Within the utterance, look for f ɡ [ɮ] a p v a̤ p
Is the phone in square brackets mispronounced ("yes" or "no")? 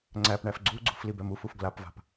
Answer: yes